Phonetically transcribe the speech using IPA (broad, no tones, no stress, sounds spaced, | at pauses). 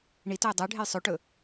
ɳ i t ɵ j dˤ ʉ ɖʱ e j sˤ ʉ ʈ ɵ